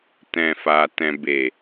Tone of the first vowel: low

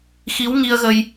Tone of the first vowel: rising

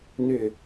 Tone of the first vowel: falling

